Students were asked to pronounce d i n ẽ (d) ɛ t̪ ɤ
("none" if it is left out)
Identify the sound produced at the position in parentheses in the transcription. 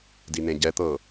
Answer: ɟ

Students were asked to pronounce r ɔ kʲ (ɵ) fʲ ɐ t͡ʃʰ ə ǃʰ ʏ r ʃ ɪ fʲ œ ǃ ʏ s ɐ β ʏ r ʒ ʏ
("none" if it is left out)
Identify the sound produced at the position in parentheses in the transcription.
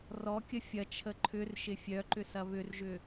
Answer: ə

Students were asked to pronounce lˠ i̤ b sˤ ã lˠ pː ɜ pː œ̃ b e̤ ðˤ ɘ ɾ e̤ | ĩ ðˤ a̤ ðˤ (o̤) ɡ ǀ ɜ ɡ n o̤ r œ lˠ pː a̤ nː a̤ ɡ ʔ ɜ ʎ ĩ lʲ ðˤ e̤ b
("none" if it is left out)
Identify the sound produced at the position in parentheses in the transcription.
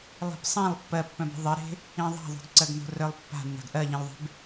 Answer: o̤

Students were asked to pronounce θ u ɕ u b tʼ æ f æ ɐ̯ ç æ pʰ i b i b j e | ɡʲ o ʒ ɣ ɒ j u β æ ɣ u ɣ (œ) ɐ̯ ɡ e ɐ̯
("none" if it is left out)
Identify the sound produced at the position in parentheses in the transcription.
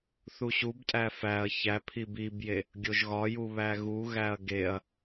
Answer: æ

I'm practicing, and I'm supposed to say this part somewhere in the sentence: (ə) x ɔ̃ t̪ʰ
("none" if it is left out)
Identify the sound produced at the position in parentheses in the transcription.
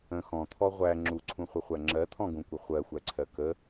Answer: ə̃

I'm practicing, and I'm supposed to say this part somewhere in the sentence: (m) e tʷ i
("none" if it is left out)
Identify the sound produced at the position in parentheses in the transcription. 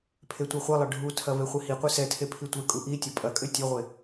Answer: pʰ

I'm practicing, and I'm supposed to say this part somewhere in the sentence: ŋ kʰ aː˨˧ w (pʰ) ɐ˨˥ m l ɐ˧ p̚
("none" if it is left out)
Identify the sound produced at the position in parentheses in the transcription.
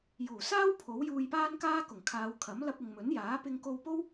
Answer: kʰ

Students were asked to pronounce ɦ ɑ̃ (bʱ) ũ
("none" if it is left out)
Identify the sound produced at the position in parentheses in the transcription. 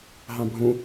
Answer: bʱ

